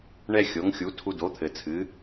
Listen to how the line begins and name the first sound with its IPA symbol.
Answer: ɳ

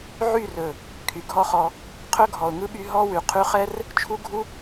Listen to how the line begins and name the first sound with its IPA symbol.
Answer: ʕ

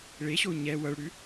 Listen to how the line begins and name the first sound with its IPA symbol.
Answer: ɭ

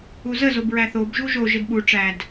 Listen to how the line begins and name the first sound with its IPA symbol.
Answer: u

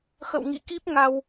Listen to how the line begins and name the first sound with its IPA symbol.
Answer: x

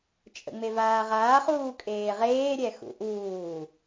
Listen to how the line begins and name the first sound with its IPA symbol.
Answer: t͡ʃʼ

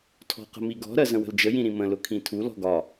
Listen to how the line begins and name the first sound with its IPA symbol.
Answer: tʰ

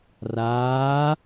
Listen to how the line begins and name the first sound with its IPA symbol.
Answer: r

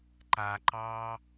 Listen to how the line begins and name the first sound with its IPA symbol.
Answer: ǃ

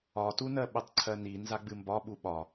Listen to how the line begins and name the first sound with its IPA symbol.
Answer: ɒ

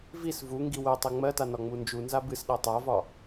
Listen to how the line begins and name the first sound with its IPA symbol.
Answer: v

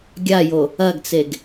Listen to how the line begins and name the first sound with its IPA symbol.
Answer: ɡʲ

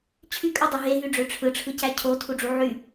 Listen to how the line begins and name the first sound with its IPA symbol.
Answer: t͡ɕʰ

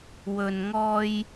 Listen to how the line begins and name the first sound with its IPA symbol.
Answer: w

